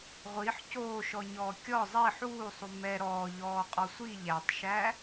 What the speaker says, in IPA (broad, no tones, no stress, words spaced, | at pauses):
ʁʷiħ coːʃɔɲɔː kʲɔ zˤi ħuːsˤu mɛ ɾɔːʎɔːqʼɔ sʷi ʎætˤʃæ